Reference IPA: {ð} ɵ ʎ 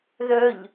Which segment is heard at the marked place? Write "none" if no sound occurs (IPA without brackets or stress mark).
ð